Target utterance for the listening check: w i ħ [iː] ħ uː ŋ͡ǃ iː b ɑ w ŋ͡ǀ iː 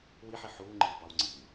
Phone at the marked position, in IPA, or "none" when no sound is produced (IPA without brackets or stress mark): i